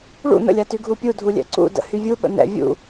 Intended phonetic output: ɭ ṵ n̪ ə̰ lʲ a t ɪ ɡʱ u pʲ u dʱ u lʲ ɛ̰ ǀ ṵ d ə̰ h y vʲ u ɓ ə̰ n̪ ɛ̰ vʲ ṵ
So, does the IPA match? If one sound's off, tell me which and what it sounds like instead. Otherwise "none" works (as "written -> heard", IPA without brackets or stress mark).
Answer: ɪ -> y